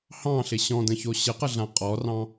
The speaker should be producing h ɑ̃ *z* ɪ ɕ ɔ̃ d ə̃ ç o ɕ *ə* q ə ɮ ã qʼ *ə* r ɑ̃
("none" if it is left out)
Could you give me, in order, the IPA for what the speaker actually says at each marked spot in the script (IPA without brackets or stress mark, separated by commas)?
ɬ, ə, ɔ